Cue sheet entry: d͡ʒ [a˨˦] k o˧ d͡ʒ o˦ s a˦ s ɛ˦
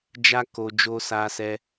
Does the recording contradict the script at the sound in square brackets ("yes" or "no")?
yes